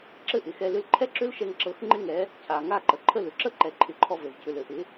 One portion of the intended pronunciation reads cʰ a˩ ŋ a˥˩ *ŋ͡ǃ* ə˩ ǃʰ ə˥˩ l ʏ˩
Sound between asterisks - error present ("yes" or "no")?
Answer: yes